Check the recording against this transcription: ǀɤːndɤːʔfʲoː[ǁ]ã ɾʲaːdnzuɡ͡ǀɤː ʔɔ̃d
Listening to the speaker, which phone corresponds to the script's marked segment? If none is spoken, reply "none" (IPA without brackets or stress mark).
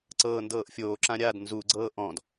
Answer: ǁ